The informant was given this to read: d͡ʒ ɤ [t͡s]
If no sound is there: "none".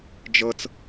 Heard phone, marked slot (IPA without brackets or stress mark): t͡s